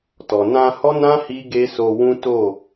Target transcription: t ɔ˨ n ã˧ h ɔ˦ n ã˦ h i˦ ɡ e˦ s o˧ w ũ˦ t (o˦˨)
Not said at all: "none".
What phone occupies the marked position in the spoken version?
o˦˨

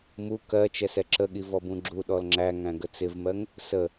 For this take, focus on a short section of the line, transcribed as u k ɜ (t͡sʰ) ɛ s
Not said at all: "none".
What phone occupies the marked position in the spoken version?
t͡ʃ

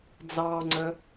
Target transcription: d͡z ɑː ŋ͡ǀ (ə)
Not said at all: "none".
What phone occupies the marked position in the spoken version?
ə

